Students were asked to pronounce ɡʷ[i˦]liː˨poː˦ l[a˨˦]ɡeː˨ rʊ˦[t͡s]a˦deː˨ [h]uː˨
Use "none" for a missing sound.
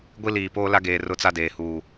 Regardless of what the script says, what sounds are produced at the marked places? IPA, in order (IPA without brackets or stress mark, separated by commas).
i˦, a˦, t͡s, h